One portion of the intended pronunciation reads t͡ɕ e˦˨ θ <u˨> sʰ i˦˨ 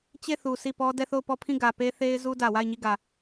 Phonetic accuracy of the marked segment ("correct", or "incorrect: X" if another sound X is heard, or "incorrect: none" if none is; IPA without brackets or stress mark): correct